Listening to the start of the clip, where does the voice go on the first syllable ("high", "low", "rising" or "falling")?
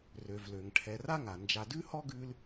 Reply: low